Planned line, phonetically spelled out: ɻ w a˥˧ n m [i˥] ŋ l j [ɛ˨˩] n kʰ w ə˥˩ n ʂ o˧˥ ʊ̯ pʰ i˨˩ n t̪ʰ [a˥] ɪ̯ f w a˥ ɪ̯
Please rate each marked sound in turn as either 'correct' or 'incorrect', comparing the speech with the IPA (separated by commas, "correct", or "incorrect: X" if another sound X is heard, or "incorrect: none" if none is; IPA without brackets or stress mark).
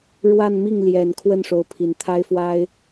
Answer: incorrect: i˥˩, correct, correct